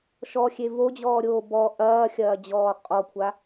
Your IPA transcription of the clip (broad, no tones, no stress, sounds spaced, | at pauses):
ʃ ɔ xʲ e v o d͡ʑ ɔː ɾʲ oː b ɔ ʔ ɐː xʲ ɐː d͡ʑ ɔː qʼ ɔ kʷʰ a